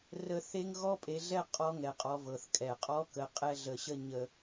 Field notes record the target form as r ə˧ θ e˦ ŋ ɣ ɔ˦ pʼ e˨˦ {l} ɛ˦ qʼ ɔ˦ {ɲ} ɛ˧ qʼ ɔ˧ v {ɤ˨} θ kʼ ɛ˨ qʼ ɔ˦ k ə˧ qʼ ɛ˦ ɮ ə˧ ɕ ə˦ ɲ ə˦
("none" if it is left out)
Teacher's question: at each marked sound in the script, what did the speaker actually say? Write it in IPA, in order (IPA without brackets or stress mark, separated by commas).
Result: ɮ, ŋ, ɤ˨